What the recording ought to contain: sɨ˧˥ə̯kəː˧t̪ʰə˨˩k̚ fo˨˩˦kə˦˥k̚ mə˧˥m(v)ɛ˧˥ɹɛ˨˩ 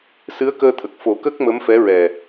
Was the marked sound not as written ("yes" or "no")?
yes